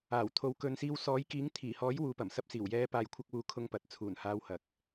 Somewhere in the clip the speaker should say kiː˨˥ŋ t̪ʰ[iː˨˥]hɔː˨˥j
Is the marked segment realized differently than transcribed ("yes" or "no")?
yes